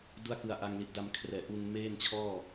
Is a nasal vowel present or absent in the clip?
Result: absent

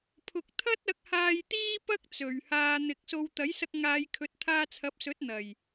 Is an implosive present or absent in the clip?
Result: absent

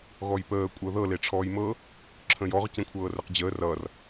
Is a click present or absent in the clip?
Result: present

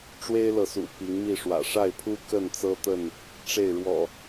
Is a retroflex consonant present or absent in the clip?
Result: present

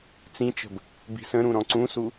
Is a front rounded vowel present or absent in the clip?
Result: absent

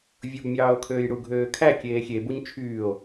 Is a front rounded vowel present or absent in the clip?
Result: present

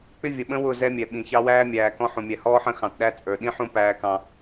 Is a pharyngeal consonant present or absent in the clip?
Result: present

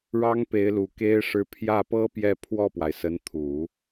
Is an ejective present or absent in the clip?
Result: absent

